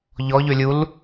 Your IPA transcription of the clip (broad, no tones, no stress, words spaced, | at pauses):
ʎɔʎø lʲul